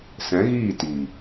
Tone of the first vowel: rising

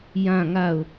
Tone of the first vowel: falling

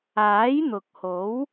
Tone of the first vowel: rising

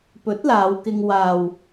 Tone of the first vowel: rising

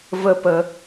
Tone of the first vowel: high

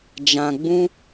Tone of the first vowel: low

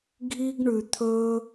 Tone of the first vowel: high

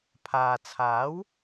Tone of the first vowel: low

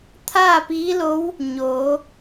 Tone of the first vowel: falling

